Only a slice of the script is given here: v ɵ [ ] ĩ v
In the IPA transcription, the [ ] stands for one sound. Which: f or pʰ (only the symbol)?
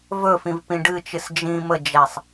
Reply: f